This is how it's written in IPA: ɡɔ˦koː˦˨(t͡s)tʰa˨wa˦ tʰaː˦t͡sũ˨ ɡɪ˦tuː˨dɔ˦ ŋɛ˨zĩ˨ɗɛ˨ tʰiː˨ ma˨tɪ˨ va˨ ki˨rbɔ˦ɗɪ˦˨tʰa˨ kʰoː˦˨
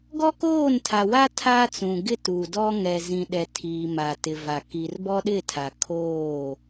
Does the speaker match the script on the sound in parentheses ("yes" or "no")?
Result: no